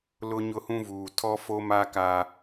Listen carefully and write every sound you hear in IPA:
l ʊ˦ ɲ ʊ˦ h ũ˦ v uː˨ tʰ ɔ˦ f o˦ m a˦ k a˦

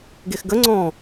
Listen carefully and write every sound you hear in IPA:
ɡ e x ɡ ə ŋ͡ǀ ɔ̃

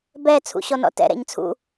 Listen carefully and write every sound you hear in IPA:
b ɛ t͡sʰ ṵ ɕ ɔ n ɔ̰ t ɛ̰ ɾ ɛ̰ ɲ t͡sʰ ṵ

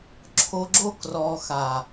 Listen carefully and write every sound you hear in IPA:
ǁʰ o˧ ɡ͡ǁ o˦ k r ɔ˧ x a˨

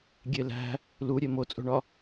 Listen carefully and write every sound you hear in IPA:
ɡʲ e l æ̤ | l u ɾʲ e m o t͡sʼ o̤ ɳ ɒ

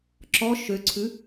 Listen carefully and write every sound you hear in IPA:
ǁ ɔ ʃ ø ǀʰ ʉ

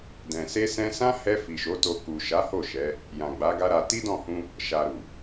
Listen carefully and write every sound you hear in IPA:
d ɛ̃˨ s e˧ s ɛ̃˧ s ã˦ h ɛ˧ f i˨ ʃ o˨˦ t o˧ k u˨ ʃ a˨˦ h o˦˨ ʃ ɛ˨˦ | j ã˨ ɡ͡b a˨˦ ɡ a˦ ɾ a˧ t i˦ d ɔ̃˦˨ h ũ˧ | ʃ a˨ ɾ u˨

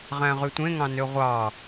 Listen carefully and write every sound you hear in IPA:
ʁ æ̃ ʁ y tʷ ẽ ŋ ɑ̃ n ø ʁʷ ɑ

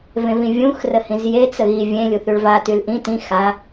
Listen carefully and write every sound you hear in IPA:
v ẽ v ĩ vʲ ũ x r ə h ĩ z j e t͡s ə ɣ i vʲ ẽ lʲ u θ y ɭ v a t y l ʔ ĩ t ĩ x a

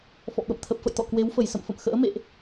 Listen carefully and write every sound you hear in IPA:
f ɔ̰˧˨ ɓ ə̰˧˨ m t̪ʰ ə˨˩ p̚ f ə̰˧˨ j t̪ ɔ̰˧˨ k w e˨˦ w f ə˧˩ j s ə̰˧˨ m f ə̰˧˨ m x ə̰ː˧˥ m ḛ˧˨ ʔ

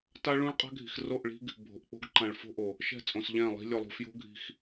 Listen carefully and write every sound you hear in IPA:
t a˦ ɭ ũ˦ ɭ qʼ a̤˦ ɡʱ i̤˨ x r o˦˨ ʔ ɭ i̤˦ ɡ | bʱ o̤˨ ʔ k͡p o̤˦ ɡ ǃ ã˨ ɭ f o̤˦ ʔ o˨ | ʃ ɛ̤˦˨ t͡sʼ õ˨ s ʎ ɛ̃˦˨ lˠ i̤˦ lʲ o˨ lˠ ṳ˨ f j o̤˦ ɡʱ i̤˦ x

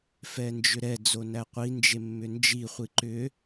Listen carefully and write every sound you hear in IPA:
f ɛ n d͡ʒ ʏ ɾ ɛ d͡z o n æ qʷ i n d͡ʒ e mː ʏ n d͡ʒ i χʷ i ǃ ʏ

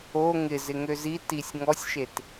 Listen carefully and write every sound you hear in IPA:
o ŋ ɪ z ɪ ŋ ø z i t i sʲ ŋ ɔ sʲ ʃ e t

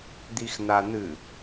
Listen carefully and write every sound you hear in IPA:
d̪ i x n̪ a n̪ ɨ

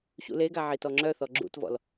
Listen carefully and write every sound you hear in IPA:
ɕ ṵ l e ɡ a ʕ i t ɔ ŋ͡ǁ œ θ ɔ ɡ͡ǁ ṵ t v ɔ̰ l

